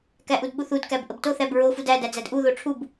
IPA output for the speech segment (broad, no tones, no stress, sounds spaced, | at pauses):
k æ ʔ u d ɓ u θ u d k æ b ʔ ə b t o θ æ b ɹ o f u d æ d æ d͡z æ d ʔ u ð o ʈ͡ʂʰ u b